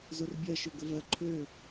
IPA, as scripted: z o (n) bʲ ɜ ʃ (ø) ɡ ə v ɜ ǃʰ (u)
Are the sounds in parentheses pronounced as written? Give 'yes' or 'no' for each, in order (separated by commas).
no, yes, no